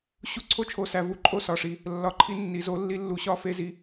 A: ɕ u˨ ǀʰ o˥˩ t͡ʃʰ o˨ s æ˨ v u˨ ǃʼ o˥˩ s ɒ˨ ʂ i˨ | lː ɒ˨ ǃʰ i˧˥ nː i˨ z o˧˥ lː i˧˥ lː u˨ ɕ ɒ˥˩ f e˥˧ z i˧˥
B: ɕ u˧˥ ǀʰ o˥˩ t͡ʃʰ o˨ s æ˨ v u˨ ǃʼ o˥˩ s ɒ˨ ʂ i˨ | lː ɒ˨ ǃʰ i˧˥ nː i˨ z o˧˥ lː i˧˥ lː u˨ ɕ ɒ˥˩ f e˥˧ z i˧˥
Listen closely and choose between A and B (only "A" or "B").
B